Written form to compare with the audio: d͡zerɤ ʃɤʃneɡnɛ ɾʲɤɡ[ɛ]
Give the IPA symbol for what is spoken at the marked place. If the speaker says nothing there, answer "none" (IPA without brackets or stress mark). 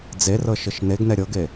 e